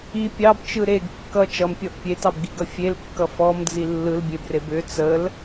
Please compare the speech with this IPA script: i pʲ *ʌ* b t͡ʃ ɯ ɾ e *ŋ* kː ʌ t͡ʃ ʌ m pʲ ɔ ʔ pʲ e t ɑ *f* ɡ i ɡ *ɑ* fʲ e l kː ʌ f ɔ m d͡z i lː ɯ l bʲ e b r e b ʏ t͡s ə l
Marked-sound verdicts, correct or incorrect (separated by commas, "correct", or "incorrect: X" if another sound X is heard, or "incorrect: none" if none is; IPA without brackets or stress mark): incorrect: ɑ, incorrect: ɡ, incorrect: b, incorrect: ʌ